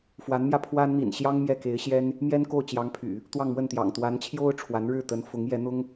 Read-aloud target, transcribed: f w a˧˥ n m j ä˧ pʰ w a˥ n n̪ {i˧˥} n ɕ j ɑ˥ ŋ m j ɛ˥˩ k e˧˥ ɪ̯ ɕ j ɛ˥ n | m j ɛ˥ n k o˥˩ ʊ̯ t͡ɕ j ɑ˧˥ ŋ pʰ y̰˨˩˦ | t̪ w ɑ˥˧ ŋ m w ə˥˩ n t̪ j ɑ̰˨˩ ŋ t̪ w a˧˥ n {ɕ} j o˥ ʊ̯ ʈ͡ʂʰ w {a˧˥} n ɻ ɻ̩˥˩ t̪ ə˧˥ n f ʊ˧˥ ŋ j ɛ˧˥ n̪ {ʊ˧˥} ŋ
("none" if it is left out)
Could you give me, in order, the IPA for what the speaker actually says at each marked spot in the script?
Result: ḭ˨˩, t͡ɕʰ, a˧˥, ʊ˥

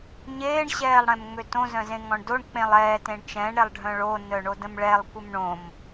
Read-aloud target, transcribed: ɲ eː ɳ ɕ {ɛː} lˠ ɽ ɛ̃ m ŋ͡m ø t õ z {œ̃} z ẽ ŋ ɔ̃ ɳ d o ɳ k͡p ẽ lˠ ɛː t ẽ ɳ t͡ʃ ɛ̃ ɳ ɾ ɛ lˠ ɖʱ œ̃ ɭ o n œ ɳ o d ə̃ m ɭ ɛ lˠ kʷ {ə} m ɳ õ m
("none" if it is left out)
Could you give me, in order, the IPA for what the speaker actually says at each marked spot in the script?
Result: ɛː, œ̃, ə

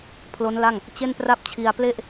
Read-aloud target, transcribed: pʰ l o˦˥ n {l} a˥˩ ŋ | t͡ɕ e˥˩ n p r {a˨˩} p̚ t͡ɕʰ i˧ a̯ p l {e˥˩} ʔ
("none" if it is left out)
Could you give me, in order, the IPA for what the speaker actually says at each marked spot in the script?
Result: l, a˥˩, e˥˩

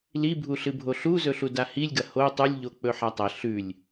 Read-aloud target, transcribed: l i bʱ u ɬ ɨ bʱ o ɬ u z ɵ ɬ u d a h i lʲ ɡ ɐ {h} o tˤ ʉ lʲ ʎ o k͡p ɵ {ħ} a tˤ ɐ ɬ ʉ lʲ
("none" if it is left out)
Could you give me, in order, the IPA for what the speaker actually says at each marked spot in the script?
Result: h, ħ

